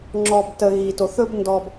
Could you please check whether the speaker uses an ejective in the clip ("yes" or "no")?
no